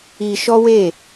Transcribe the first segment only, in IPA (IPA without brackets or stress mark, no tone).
i